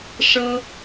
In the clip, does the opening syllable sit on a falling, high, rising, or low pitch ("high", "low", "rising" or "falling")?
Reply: high